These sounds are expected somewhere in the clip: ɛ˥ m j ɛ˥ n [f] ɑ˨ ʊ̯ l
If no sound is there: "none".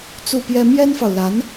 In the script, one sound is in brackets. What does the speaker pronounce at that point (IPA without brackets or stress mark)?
f